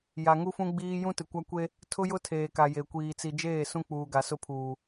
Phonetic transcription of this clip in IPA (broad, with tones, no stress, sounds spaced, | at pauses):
j a˨ ŋ u˦ f ũ˦ ɡ͡b iː˦ j ũ˦ t ɪ˨ kʷ a˦ kʷ e˦ | tʰ ʊ˦ j ʊ˦ tʰ eː˨ k a˨ j e˨ kʷ iː˨ t͡s i˨ d͡ʒ eː˦˨ s ũ˦ k͡p uː˨ ɡ a˨ s ʊ˦ pʰ uː˨